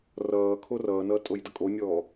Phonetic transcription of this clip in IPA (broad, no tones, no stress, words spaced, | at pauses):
rʌːkʰo rʌːnʌː tʼojdʌkʼonʲɔː